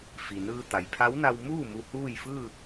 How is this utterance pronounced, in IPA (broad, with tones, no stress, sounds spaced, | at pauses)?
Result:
f i˩ n ɯː˧ t̪ a˩ j pʰ a˧˥ w n a˧ w m uː˥˨ m u˧ h uː˥˨ j f ɯː˥˨